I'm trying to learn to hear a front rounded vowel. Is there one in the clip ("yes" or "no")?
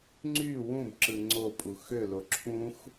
yes